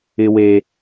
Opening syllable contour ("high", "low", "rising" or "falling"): low